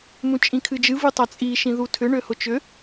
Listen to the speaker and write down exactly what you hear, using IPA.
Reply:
mũt͡ʃʼĩkʰɨd͡ʒɨ vɨtˤat͡sʼi ʃĩðutʰʏ ɳøhʊt͡ʃʏ

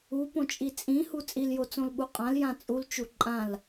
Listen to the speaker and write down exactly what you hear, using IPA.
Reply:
upõt͡ʃʼi t͡sʼĩhu t͡sʼiljot͡sõlɓu qʼãljã t͡sʼult͡ʃu ǃʼãl

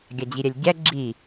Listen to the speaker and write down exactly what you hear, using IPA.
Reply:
ɡʲad͡ʑiɾʲɛlʲɟɛ ɡ͡ǁi

